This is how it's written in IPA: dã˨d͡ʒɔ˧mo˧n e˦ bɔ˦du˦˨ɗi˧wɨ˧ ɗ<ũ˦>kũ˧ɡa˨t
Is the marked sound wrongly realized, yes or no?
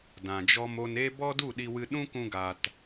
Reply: no